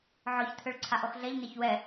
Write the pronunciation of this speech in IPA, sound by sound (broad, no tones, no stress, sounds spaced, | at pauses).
ʕ ɔ ç t̪ʰ ø ɭ ǀʰ a ʔ ɔ x ɮ ɛ ʎ n e ç w ɛ